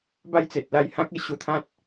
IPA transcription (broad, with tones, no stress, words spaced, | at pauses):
ba˥˧jt͡se˨t̚la˧j hã˦k̚e˥˧ ɕu˧t̪ʰã˦t̚